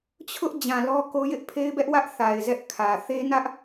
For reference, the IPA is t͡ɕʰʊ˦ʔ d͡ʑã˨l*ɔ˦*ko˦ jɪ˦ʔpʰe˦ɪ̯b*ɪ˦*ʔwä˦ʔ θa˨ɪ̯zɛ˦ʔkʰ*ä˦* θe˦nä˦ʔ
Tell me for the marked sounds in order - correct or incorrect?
correct, incorrect: ɛ˦, incorrect: ä˨

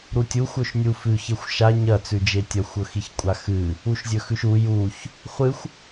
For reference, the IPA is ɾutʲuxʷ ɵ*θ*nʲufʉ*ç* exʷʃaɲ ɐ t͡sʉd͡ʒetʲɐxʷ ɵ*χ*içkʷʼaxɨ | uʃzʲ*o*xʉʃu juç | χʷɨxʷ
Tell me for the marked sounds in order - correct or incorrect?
incorrect: ʃ, correct, incorrect: x, incorrect: ɵ

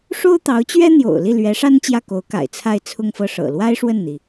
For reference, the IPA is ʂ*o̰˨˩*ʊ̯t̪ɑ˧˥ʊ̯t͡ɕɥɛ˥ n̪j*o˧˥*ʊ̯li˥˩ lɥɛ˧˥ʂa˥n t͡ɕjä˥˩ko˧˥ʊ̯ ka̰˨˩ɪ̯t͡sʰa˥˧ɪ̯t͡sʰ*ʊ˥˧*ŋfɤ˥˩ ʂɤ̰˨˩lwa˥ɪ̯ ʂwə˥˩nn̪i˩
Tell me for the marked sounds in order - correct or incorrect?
incorrect: o˥, incorrect: o̰˨˩, correct

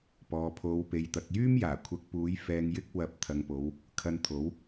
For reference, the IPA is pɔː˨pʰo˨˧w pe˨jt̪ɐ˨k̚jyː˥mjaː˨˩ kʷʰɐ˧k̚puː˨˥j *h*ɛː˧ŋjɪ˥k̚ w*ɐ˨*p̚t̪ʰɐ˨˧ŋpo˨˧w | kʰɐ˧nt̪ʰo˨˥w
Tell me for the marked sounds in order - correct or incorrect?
incorrect: f, incorrect: ɐ˨˥

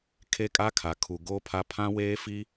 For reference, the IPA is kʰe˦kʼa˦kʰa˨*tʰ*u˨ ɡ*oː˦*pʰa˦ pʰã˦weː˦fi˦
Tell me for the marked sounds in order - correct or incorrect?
incorrect: kʰ, correct

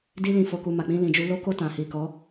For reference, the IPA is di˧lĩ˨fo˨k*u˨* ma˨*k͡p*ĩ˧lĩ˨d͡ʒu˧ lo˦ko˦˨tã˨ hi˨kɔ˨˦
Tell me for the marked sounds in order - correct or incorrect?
correct, correct

